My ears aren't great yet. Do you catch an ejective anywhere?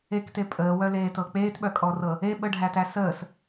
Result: yes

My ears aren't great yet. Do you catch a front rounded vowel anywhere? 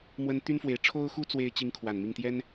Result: yes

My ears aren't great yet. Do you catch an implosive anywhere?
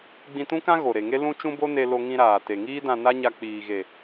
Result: no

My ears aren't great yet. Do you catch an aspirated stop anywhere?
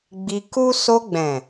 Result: no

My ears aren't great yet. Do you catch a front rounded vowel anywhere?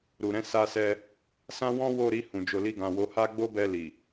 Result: no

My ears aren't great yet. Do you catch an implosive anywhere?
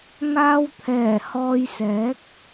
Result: no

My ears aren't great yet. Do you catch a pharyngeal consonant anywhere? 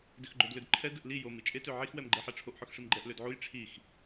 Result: yes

